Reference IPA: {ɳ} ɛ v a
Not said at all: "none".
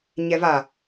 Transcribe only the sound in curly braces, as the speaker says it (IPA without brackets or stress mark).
ɲ